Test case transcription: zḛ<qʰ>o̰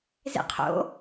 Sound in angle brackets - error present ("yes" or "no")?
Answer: no